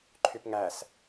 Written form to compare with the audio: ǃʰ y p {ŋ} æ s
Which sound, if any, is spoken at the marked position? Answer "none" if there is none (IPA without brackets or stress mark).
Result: ŋ